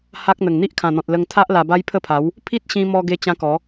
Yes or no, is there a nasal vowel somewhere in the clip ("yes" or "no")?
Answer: yes